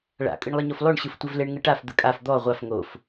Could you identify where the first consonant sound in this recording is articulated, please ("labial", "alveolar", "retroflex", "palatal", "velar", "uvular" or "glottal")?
retroflex